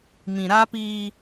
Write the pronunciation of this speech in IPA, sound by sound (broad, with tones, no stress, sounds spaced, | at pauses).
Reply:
m ĩ˨ ɾ a˦ p iː˦